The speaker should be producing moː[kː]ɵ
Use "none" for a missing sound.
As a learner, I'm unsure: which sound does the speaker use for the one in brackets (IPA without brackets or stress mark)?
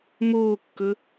kː